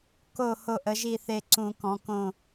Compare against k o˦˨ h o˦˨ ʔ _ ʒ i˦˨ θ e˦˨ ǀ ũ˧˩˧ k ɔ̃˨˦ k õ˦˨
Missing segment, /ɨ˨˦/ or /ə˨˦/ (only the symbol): ə˨˦